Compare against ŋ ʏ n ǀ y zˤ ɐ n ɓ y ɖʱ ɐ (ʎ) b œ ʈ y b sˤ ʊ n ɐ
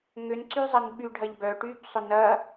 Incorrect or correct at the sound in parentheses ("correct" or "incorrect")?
correct